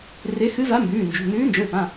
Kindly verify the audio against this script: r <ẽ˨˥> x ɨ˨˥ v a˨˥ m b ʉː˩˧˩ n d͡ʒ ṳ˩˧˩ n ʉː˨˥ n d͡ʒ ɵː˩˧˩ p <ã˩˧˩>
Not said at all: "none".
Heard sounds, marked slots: e˨˥, ã˩˧˩

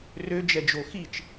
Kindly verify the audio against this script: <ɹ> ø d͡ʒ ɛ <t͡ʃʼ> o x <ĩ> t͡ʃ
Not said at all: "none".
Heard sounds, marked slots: r, d͡ʒ, i

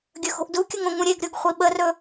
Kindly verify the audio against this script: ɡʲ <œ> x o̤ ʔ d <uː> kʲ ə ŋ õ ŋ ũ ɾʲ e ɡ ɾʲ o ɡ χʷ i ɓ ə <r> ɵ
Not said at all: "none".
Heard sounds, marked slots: ɵ, u, r

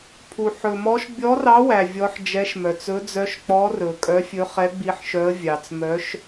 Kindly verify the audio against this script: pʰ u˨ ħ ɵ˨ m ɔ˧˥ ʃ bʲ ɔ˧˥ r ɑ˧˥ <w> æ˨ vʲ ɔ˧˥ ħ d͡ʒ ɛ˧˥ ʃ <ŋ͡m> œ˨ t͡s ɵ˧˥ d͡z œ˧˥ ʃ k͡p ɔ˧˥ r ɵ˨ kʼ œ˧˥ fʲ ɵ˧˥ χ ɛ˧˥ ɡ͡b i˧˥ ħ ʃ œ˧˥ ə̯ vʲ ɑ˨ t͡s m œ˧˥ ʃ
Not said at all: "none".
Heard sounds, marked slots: w, m

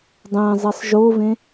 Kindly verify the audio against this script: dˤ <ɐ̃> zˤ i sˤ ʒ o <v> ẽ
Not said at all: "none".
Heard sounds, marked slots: æ̃, v

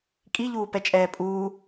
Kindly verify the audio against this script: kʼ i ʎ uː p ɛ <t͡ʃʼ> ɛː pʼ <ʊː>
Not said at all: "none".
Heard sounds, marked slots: t͡ʃʼ, uː

